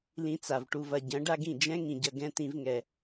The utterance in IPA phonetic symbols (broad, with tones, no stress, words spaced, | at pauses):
lĩ˧t͡sa˨v ʈu˨vɐ˨ ɟɐ̃˨˦ ɖa˦ɡĩ˦˨ d͡ʒɛ̃˦ ŋĩ˨ɟɐ˧ ɡɛ̃˦ t̪ĩ˦vŋɛ˧